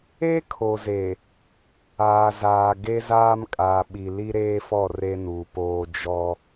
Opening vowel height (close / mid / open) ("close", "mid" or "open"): mid